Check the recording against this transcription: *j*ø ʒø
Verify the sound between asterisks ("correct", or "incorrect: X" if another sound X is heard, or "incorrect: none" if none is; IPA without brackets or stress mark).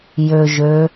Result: correct